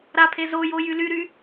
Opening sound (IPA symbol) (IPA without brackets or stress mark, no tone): ɾ